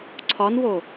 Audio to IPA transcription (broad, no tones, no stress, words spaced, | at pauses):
ǀʰɒnwo